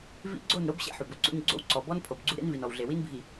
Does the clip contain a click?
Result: yes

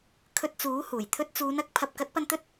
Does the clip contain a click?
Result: no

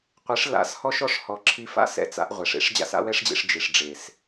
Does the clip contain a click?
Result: yes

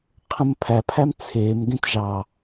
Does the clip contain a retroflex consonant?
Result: no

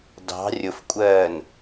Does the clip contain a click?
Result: no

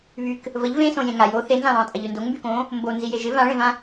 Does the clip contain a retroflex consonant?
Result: yes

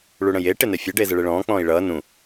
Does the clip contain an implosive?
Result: no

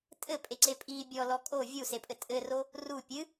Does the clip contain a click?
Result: yes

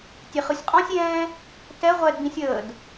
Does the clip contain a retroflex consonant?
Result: no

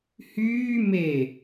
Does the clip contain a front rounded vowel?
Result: yes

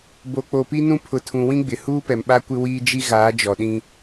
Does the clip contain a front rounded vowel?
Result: no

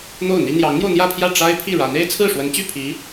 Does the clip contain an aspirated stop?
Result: yes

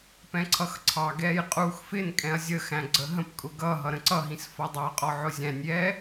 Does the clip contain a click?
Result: yes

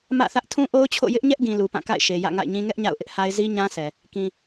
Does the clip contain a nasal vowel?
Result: yes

